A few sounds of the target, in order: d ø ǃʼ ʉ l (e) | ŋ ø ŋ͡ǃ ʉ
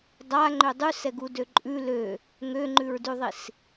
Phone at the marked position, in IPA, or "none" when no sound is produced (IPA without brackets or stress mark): ø